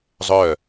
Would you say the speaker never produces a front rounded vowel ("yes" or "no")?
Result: no